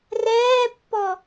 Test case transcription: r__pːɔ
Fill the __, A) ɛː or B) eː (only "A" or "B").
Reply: A